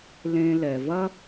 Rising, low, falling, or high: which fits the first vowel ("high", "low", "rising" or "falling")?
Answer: low